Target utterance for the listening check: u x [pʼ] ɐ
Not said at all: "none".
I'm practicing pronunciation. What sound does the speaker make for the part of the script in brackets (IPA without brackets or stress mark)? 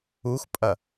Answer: pʼ